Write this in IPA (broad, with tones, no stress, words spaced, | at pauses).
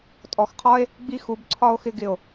tʼɔ˨xqʰɒ˦e̯ | ɡ͡bi˦xu˨˦bǀʰɒ˦o̯xɪ˧ ɡɪ˨o̯